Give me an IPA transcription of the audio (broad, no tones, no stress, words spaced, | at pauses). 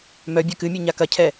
mœ bʲœkɨmʲɛ ɲakɐcʰɛ